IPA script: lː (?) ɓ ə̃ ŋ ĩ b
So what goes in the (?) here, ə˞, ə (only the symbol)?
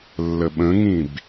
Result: ə